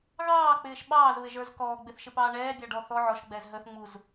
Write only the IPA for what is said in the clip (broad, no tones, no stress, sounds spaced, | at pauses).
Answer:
ɣ ɑː k͡p ɪː ʃ ɓ ɑː z β ɪ ʒ ə˞ z k ɔː ɡ͡b ɪ θ ʃ ɪ p ɑː ɳ ɛː bʲ ɑ ɖ ɔ θ ɔ ʕ ɔ ʃ ɡ͡b ɛ z ɦ ə θ ŋ͡m u z